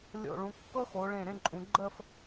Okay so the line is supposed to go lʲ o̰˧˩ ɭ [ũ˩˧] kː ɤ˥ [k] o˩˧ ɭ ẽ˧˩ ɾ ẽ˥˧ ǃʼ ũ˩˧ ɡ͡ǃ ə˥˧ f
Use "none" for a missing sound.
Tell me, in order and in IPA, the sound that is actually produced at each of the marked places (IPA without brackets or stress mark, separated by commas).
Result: ũ˩˧, x